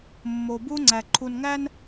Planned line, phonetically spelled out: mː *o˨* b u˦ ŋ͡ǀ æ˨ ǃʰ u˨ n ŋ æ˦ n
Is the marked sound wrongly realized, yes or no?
no